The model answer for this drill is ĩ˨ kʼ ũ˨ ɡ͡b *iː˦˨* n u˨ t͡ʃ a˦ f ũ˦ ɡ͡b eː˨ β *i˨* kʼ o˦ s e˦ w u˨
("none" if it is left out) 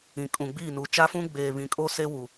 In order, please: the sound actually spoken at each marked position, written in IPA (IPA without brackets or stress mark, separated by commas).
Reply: iː˦˨, ĩ˨